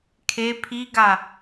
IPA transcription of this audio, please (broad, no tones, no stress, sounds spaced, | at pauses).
kʰ e pʰ i ɡ a